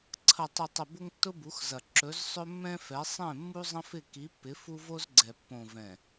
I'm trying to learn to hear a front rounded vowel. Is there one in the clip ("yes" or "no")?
no